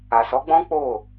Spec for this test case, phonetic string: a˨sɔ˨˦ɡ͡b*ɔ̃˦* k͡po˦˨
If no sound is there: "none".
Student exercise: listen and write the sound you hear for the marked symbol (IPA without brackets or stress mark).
ɔ̃˦